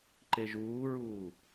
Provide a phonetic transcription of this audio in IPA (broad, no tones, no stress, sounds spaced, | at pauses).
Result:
ǃ e ʒ uː ɹ uː